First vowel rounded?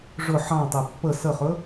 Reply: yes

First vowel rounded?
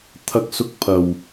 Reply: no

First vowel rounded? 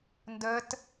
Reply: no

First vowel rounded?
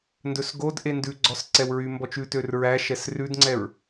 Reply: yes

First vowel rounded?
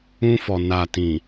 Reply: yes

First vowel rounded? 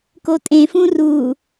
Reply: yes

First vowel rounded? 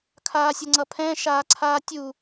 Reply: no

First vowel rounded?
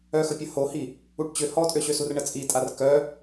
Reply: yes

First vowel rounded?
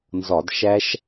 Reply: yes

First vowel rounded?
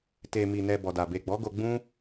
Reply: no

